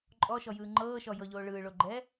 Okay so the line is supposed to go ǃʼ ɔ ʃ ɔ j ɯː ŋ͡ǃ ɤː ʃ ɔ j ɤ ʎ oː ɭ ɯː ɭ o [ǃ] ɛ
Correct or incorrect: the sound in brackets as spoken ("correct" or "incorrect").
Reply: incorrect